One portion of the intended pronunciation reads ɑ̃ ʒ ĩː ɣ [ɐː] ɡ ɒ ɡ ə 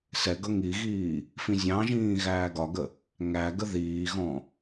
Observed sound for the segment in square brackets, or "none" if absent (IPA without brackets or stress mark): æː